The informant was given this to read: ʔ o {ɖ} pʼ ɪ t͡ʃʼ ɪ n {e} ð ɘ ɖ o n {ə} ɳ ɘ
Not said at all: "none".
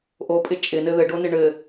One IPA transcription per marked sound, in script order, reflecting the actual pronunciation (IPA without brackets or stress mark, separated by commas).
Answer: none, ɘ, ɪ